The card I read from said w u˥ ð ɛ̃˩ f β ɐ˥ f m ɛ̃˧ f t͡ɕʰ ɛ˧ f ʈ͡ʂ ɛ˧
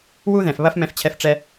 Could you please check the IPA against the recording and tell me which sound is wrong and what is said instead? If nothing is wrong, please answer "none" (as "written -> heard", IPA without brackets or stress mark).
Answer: none